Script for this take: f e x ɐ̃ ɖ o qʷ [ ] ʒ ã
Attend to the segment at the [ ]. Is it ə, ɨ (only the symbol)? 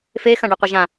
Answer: ɨ